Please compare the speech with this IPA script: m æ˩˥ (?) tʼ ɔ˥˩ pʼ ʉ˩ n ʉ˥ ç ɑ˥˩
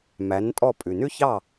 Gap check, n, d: n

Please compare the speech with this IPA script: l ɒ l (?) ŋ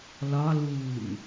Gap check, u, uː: uː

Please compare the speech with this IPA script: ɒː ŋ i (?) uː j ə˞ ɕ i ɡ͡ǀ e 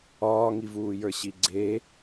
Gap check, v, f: v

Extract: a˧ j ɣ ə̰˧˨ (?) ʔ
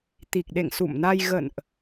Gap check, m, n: n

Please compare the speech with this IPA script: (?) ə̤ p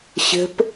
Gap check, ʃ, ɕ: ɕ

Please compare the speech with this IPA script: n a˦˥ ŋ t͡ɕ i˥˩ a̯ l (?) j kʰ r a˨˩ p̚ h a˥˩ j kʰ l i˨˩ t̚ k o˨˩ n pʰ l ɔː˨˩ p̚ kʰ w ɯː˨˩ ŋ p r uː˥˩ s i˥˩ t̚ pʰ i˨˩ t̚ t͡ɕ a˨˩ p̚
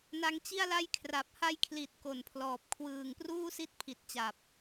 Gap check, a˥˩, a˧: a˥˩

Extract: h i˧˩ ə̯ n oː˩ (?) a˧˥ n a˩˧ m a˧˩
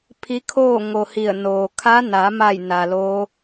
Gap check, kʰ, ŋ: kʰ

